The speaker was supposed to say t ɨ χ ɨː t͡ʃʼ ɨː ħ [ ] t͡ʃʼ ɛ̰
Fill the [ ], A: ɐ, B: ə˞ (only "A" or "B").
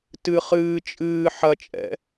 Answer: A